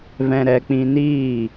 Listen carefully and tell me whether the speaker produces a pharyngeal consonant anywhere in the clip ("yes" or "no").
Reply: no